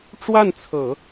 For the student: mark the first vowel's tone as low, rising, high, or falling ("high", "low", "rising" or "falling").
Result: falling